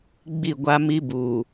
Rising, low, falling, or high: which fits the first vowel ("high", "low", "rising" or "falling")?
falling